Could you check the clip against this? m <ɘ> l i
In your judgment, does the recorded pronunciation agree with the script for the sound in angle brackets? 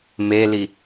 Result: no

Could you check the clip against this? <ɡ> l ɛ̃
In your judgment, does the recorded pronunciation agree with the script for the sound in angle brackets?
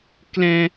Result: no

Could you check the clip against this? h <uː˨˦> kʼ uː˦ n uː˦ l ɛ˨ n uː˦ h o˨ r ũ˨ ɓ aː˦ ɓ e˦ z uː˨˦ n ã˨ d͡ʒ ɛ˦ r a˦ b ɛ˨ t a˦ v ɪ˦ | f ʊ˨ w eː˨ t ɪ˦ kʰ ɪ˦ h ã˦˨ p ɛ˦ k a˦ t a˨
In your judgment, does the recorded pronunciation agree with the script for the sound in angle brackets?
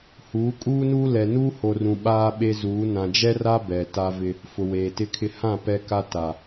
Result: yes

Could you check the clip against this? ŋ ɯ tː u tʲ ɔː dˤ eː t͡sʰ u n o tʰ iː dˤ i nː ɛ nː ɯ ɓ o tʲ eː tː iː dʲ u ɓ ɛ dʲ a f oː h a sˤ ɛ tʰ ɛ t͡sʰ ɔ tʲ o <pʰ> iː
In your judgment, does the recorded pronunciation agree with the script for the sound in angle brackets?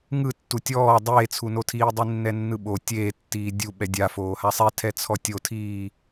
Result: no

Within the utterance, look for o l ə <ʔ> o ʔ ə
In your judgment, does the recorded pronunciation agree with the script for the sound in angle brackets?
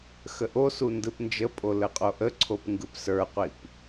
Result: no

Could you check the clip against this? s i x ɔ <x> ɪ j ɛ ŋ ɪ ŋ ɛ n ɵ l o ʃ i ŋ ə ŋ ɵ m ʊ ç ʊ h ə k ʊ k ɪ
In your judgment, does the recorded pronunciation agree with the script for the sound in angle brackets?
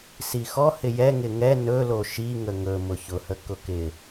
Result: no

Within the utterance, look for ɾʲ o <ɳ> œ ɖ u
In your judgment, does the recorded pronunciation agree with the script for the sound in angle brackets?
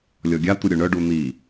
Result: yes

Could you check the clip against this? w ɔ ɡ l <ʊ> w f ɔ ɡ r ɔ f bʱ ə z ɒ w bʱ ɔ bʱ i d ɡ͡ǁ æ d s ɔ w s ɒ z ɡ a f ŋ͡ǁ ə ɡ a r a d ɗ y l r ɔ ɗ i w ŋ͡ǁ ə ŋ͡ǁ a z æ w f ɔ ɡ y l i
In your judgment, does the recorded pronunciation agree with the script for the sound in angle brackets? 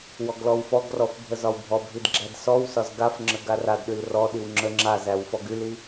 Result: no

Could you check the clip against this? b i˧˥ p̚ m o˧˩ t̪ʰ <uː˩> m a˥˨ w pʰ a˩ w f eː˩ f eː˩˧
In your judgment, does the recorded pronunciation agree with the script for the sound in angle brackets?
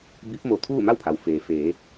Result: no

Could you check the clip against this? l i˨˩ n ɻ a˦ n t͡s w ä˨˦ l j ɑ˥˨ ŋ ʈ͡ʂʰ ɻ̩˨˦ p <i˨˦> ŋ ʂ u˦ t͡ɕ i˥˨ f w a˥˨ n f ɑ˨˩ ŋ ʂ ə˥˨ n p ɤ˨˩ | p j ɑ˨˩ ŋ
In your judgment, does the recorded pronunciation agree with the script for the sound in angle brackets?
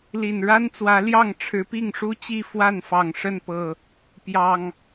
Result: no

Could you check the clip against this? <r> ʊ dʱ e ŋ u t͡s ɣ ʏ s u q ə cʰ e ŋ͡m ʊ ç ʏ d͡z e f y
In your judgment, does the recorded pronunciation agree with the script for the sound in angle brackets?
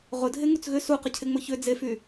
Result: no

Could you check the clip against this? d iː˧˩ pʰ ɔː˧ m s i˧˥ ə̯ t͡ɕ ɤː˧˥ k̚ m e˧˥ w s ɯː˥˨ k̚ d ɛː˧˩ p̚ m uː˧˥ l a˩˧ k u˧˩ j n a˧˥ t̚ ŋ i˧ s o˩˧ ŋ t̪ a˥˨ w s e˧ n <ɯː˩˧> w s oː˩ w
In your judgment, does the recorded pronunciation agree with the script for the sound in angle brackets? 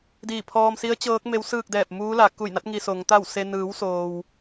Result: yes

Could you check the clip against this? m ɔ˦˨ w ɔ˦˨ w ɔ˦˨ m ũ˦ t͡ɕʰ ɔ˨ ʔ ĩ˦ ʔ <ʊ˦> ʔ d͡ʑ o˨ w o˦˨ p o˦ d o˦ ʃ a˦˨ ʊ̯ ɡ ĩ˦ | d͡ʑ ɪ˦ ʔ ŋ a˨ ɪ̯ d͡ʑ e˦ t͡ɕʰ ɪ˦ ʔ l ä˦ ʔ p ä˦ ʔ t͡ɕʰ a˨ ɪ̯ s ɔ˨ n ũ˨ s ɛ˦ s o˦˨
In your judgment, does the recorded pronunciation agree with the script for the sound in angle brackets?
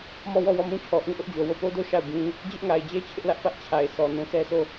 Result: yes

